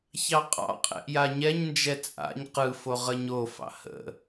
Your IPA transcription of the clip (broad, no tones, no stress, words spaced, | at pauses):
çɑqʼɑ̰qʼɛ̰ʔ jaɲɛɲnd͡ʒɛ t͡sʼa̰ɲ qɯfo ʁəɲofɑ̰ hə̰